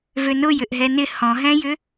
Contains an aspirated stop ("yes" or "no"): no